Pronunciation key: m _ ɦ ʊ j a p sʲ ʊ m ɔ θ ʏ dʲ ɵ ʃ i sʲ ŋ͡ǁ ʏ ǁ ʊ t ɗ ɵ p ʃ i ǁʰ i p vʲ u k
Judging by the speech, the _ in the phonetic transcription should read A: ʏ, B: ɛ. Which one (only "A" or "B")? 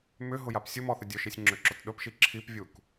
A